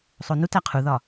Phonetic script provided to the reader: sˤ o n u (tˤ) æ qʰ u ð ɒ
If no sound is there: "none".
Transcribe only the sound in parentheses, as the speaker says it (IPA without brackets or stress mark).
t